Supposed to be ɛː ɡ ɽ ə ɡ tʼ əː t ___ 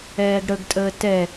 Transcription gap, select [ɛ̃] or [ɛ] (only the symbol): ɛ